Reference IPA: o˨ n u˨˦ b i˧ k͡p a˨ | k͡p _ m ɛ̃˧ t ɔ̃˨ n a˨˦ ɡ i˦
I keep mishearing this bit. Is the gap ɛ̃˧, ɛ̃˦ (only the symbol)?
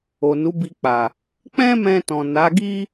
ɛ̃˦